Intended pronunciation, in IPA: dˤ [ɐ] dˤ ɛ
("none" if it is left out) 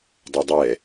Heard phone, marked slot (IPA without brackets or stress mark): ɐ